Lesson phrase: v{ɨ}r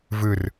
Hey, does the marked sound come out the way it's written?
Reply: yes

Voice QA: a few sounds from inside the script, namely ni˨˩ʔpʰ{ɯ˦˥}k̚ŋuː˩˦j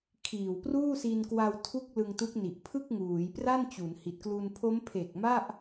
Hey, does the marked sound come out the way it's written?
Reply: no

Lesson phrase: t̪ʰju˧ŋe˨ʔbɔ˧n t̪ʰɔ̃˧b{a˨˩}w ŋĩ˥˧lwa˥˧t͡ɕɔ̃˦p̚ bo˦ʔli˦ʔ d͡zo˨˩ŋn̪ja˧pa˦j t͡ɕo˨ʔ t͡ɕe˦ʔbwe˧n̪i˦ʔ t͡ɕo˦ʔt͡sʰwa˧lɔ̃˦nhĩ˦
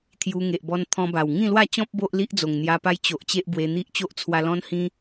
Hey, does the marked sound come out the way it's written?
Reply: yes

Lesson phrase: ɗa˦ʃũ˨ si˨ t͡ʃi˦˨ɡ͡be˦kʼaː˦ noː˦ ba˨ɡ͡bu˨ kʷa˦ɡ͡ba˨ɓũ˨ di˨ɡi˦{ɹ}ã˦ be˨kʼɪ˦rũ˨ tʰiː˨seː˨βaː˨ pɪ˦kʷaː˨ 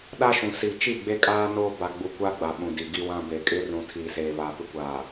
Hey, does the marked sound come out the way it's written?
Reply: no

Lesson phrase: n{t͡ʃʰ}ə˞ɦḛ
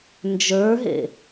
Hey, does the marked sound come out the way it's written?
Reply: no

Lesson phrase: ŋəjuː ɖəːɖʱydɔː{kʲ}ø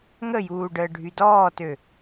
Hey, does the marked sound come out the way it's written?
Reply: no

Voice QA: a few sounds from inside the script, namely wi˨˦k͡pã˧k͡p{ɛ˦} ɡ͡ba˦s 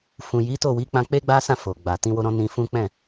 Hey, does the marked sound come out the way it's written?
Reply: no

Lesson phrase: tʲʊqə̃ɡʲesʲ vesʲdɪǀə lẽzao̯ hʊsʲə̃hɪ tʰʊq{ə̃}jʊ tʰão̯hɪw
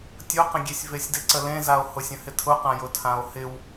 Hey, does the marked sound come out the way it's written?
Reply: no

